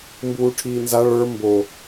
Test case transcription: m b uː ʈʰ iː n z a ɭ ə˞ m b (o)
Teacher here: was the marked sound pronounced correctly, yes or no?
yes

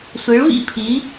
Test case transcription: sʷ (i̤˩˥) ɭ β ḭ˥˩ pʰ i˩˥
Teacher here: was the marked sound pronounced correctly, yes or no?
no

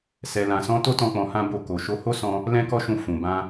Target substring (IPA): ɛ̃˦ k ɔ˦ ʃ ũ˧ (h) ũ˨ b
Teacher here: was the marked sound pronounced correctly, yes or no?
no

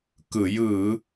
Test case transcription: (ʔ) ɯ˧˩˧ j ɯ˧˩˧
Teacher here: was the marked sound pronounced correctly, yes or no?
no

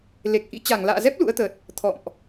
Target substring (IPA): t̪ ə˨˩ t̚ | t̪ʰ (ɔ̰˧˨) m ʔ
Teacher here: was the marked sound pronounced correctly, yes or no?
yes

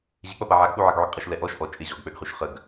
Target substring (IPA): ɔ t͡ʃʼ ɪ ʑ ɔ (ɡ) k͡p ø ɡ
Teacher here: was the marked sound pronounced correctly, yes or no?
yes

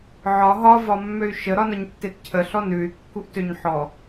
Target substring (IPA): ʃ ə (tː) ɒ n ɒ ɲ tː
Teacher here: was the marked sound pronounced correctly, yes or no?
no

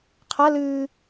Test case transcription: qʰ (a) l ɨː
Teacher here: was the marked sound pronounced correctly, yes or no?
yes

